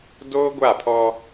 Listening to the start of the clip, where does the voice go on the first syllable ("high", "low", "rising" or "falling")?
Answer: high